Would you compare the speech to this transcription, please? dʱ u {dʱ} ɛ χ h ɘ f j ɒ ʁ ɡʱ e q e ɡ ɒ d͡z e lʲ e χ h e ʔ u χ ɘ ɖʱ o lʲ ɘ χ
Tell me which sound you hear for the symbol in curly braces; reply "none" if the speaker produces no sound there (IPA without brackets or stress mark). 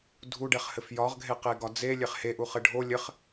ɖ